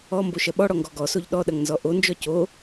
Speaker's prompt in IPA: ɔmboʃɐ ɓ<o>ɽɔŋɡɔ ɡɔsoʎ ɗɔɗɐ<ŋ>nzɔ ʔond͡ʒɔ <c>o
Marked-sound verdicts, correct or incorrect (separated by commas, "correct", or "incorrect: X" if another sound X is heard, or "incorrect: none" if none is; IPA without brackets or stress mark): incorrect: ɔ, correct, correct